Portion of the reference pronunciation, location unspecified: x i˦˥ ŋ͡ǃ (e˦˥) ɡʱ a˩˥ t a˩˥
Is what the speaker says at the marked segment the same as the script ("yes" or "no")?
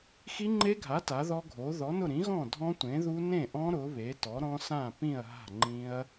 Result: yes